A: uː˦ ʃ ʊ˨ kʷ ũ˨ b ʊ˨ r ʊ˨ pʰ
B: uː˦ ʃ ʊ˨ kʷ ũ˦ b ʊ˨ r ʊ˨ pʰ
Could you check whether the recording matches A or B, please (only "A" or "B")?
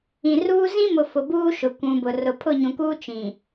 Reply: A